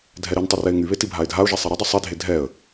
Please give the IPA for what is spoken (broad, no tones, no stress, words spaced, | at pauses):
dʱɛɾintˤə rɛɪ̯ŋyβe tibʱaɪ̯dʱaʊ̯ʒɛ sˤeɾədˤy sˤidʱe dʱɛə̯